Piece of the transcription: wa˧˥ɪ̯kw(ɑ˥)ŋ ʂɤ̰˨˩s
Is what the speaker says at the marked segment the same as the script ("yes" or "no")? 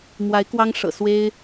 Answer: yes